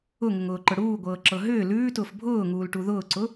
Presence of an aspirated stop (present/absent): absent